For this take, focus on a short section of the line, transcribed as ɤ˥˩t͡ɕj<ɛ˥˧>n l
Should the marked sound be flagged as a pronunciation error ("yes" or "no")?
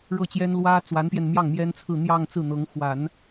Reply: yes